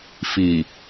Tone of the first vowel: low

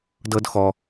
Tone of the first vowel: high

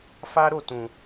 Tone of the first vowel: high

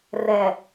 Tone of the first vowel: low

